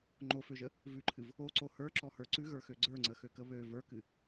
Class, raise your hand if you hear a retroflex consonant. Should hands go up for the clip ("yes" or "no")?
no